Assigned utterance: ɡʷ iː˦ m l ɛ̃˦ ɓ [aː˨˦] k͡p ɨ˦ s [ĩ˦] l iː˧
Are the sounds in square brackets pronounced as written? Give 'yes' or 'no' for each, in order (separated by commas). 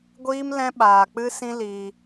no, yes